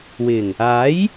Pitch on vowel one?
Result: low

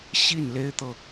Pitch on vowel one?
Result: falling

